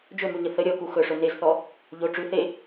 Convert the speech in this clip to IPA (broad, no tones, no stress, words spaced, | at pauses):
d͡ʒɵmʉɲə θə ɾʲɔku xɵʂɵ nezθɔ | ʎo ʈ͡ʂʉ θe